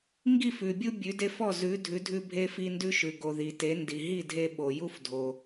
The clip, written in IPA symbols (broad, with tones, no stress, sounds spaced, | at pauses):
ŋ ɡ i˥˨ f ʉ˨ bʲ u˦ bʲ ʉ˨˦ d e˦ f ɔ˥˨ z ʉ˨˦ dʱ ʉ˨˦ dʱ ʉ˦ bʱ e˦ f i˦ n d ʉ˦ ʃ ʉ˨ ɡ o˨ ð i˨ t e˨˦ n d i˨ ɦ i˥˨ dʱ e˦ ɓ o˨ j u˦ f dʱ o˨